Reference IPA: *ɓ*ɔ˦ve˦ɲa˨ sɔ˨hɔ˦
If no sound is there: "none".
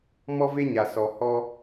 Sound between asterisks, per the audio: m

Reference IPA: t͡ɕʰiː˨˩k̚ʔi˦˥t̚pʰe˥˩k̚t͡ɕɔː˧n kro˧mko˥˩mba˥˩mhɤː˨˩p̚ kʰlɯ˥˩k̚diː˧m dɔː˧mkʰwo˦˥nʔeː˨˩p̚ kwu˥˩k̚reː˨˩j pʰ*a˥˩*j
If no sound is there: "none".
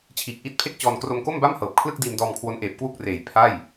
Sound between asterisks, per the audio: a˥˩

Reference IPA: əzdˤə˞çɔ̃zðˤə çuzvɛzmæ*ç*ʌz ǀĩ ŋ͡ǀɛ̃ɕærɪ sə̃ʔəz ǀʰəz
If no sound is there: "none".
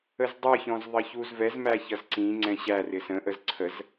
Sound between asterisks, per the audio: ç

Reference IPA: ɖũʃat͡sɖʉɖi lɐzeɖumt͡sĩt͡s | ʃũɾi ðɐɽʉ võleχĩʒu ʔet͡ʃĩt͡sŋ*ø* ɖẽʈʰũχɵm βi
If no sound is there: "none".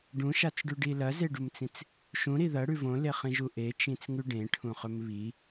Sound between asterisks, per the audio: ʉ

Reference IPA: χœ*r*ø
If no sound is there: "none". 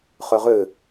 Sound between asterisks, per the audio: ʁ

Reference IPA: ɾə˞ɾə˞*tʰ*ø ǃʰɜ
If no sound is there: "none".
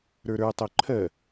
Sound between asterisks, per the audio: tˤ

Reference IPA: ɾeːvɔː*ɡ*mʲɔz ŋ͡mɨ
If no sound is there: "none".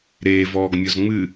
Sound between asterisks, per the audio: ɡ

